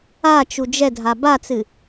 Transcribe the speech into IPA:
a t͡ʃ u d͡ʒ ɛ dʱ a b a t͡s ɨ

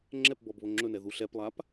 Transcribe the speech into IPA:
ŋ͡ǁ ɛ p b ɔ b β o ŋ͡ǁ ɵ n ɛ ð u ɬ ɛ p lˠ a p

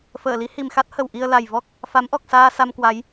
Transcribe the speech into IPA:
f əː˧˩ l i˨˦ h i˨˩ m x a˦˥ t̚ h ə˨˩ w ʔ i˧ ə̯ l a˨˩ j v ɔ˦˥ k̚ | f a˨˦ m ʔ ɔ˨˩ k̚ s aː˧ s a˧ m k w a˨˦ j

